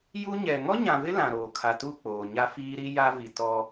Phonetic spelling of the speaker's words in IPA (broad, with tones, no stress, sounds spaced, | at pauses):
j u˦ ɲ ɛ˨ ŋ ɔ˦ ɲ ã˨ v ɪ˦ l ã˨ ɾ oː˨ kʰ a˨ t u˦˨ k͡p oː˨ ɲ a˦ f iː˦ ɾ i˦ j a˦ v i˨ t ɔ˦